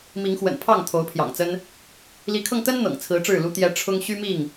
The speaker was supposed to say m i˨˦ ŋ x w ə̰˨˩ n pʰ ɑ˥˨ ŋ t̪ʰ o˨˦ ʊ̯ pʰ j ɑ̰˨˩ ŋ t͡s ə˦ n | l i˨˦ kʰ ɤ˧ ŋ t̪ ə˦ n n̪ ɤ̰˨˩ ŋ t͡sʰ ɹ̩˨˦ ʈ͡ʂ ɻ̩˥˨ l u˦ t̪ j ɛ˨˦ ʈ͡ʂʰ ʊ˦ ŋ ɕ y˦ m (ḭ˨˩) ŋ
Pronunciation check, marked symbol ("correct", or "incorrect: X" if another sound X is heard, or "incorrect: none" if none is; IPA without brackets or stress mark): incorrect: i˥˨